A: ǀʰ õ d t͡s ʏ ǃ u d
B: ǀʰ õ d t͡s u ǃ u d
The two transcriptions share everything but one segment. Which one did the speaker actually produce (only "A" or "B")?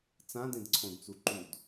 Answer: B